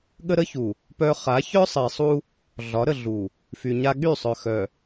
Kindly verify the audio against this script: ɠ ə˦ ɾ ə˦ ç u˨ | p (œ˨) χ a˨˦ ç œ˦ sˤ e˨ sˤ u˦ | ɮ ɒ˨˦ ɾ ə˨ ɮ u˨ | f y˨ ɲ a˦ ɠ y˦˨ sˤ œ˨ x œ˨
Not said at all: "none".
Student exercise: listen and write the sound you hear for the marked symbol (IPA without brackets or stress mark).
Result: œ˦